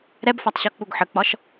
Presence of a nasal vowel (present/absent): absent